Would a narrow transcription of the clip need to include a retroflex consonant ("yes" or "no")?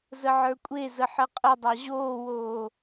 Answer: no